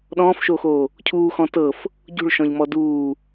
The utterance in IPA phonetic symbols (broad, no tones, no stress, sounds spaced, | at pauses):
ɗ ɔ̃ː f ʃ oː x oː | cʰ uː x ɔ̃ t ɤ f | ɟ ṳ ɭ ʃ ɔ̃ ʎ m ɔ d uː